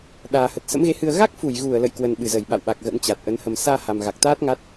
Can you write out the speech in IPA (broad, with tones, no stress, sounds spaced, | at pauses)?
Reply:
ɗ aː˨˩ h ə˨˩ t̚ s ə̰˧˥ m ɣ e˨˦ h ɨ˧ ə̯ ɣ a˦˥ k̚ f u˧˩ j ɣ u˧˩ ə̯ l ə̰˧˨ j k w ə˨˩ n ɓ ɨ˧˩ z ə˧˩ j ɓ a̰˧˨ w ɓ a˨˩ k̚ ɣ ə̰˧˥ n t͡ɕ a˨˩ t̚ ʔ ə˨˦ n h ə˨˩ m s aː˧ h a˨˩ m ɣ a˨˩ k̚ t̪ aː˦˥ t̚ ŋ a˦˥ t̚